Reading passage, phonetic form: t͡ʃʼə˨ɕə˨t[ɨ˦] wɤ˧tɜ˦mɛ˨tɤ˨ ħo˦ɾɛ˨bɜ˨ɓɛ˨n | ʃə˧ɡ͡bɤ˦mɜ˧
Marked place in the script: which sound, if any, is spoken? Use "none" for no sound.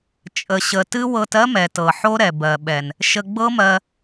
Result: ɨ˦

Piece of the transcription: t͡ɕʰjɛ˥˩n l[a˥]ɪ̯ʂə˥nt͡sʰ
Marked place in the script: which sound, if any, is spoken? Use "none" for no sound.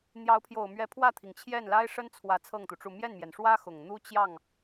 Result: a˥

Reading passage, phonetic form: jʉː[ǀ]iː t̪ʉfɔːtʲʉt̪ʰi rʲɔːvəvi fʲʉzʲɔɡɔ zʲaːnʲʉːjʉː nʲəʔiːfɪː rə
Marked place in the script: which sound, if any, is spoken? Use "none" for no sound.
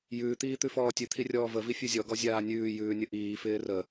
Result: t̪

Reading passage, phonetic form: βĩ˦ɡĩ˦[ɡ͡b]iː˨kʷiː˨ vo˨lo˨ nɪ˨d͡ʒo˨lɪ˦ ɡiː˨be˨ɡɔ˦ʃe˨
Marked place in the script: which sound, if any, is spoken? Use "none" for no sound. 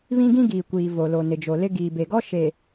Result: ɡ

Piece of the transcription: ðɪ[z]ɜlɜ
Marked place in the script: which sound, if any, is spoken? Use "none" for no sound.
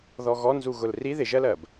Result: ʒ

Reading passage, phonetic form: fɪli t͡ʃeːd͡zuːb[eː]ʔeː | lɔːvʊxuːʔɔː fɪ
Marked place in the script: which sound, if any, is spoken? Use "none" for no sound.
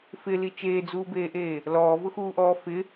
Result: eː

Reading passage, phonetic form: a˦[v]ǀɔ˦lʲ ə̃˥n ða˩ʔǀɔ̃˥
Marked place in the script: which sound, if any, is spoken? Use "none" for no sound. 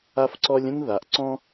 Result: f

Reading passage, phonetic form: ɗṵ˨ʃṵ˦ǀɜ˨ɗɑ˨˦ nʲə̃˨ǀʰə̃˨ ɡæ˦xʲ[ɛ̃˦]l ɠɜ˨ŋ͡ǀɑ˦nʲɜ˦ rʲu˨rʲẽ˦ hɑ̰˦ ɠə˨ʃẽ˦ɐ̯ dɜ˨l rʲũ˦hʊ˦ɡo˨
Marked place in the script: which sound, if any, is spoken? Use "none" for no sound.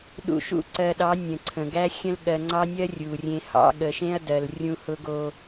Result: ə̃˦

